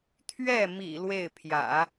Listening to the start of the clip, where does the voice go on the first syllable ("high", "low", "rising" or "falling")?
falling